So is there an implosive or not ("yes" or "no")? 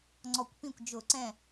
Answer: no